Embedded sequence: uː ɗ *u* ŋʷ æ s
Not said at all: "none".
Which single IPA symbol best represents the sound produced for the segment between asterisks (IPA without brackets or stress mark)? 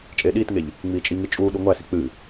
u